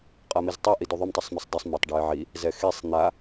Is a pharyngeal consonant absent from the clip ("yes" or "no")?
no